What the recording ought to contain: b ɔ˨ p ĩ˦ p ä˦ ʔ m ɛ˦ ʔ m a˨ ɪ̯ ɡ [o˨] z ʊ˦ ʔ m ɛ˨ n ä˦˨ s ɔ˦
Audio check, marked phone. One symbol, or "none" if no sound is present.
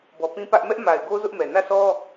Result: o˦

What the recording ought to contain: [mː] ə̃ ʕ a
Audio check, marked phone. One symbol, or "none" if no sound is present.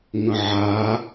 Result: ŋ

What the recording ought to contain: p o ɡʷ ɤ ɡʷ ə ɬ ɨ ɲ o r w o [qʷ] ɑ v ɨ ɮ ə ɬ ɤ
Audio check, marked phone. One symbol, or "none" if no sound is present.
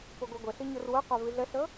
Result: qʷ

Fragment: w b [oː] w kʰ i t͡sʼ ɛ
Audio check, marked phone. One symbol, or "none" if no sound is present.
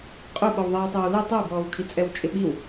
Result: ɔː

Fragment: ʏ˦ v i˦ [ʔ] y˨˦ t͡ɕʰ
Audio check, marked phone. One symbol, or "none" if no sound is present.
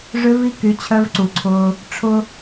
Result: k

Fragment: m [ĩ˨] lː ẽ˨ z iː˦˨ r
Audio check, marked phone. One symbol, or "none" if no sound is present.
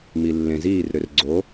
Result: i˨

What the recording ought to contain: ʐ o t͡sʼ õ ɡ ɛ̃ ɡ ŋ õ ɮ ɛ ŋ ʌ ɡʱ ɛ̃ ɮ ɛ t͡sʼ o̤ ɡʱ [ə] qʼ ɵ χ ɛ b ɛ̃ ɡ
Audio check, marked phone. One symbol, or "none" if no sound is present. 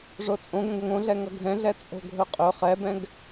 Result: ɵ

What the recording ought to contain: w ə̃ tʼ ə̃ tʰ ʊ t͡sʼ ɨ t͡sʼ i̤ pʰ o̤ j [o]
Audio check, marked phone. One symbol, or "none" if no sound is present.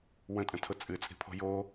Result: o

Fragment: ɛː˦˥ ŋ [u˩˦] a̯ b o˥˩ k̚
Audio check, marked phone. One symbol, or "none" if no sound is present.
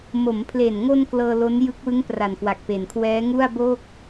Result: u˥˩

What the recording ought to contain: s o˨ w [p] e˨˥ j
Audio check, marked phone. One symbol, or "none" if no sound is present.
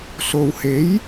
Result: h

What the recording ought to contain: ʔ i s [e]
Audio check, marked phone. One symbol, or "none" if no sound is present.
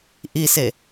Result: e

